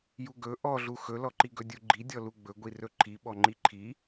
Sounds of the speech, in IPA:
j u ɡ ɵ ʔ ɔ ɮ u x ɵ l ɔ ǃ i ɡ ɵ dʲ u ɡ͡ǃ i dʲ ɔ l u ɡ͡b ɵ ɡʷ i r ɵ ǃʰ i ɓ ɔ ŋ͡ǃ i ǃʰ i

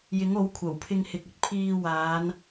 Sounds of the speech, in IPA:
j ɪ˨˥ ŋ o˨˥ w kʷʰ ɐ˨˩ w pʰ ɪ˧ ŋ h ɪ˨ k̚ ɵ˧ t̚ pʰ iː˧ w aː˨˧ n

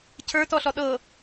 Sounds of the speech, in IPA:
cʰ ə˞ t ɔ ɬ ɔ ɗ ɤ

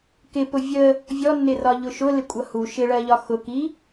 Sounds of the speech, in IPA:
k ɪ p ʊ vʲ ə | vʲ ɔ nː ɪ r ɒ ʎ ʊ ʃ ʊ l ɪ kʷʼ ʌ h u ʃ ɪ ɭ ɜ ʎ ɒ x ʊ k i

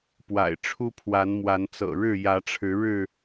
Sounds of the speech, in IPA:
p w a̰˨˩ ɪ̯ ʈ͡ʂʰ u˦ pʰ w a˨˦ n m w a˨˦ n t͡s ɤ̰˨˩ ɻ ɻ̩˥˨ j ä˨˦ ʈ͡ʂʰ ɻ̩˨˦ ɻ ɻ̩˥˨

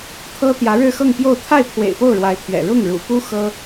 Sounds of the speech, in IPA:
t̪ʰ ɤ˥ t̪ j ä˧˥ ɻ ɻ̩˥˧ x ɤ˥˧ ŋ p j o˥˧ ʊ̯ t̪ʰ a˥˩ ɪ̯ pʰ w ḛ˨˩ ɪ̯ p o˥˩ ʊ̯ ɻ w a˧˥ ɪ̯ t̪ʰ ɥ ɛ̰˨˩ ɻ ʊ˥˩ ŋ ɻ ṵ˨˩ p u˥ x ɤ˥

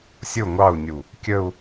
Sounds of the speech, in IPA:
sʲ ʊ ŋʷ ɑ u̯ nʲ u | kʲ ə u̯

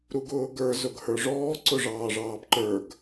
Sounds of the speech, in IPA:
ɾ u ɡ ʊː ɡ ə˞ z ʊ ɡ h ə˞ ʐ ɔː ǀ ʊ ʐ ɑː ʐ ɑː b ǃ ə˞ ɡ

